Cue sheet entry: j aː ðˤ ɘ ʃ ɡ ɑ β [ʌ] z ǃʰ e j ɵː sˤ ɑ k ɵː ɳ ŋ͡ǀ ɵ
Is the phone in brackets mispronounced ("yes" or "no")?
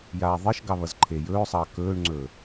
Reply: no